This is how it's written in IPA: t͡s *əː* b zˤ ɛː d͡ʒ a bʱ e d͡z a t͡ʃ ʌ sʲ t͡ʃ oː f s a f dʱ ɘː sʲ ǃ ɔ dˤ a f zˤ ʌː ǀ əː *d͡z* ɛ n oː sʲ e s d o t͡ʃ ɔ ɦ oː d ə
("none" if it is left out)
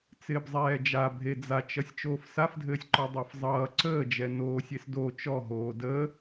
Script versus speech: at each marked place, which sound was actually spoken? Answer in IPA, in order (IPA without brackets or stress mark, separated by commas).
ɪː, d͡ʒ